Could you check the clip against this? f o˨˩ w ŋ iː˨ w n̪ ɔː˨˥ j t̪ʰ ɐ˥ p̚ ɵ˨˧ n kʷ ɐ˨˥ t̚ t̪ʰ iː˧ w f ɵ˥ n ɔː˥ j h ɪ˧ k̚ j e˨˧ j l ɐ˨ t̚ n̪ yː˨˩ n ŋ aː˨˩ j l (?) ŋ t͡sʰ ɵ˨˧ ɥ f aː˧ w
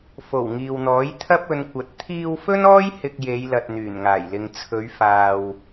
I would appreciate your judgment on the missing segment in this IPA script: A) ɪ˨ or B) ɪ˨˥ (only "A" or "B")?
A